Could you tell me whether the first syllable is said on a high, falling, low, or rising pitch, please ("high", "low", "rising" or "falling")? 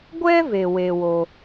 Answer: high